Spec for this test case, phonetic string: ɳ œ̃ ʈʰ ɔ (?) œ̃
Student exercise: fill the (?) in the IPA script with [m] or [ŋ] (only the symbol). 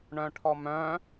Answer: m